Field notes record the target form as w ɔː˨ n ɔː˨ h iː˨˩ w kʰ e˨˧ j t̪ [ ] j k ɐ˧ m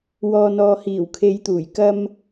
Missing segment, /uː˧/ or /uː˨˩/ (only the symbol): uː˨˩